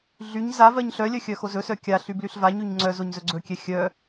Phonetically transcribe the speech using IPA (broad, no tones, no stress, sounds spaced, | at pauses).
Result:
ɮ y ɲ z a v ɜ ɲ ɬ œ lʲ œ xʲ œ x o z ɵ s œ kʲ a ɬ y b l y ɬ v a ɲ y ɲ ŋ͡ǀ œ z o ɲ z ɵ ɡ͡ǀ ɵ kʲ ɛ xʲ œ